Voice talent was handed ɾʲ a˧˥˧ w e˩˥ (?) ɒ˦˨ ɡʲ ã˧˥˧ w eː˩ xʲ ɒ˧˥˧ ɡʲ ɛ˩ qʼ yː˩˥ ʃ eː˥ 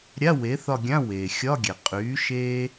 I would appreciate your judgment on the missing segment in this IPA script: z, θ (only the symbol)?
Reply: θ